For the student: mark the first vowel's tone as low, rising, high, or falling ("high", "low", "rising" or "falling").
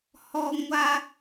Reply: high